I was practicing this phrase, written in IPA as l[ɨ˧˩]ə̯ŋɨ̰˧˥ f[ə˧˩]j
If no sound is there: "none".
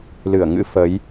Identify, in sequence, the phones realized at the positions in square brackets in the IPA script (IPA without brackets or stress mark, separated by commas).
ɨ˧˩, ə˨˦